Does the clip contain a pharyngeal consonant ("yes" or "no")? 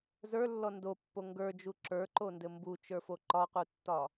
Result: no